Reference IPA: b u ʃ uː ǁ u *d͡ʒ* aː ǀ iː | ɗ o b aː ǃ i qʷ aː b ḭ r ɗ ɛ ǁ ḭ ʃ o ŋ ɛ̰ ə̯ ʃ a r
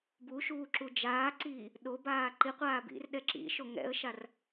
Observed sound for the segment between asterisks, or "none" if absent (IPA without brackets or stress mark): d͡ʒ